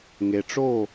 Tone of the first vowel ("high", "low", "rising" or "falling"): low